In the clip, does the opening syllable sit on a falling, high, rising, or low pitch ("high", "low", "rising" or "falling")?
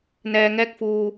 low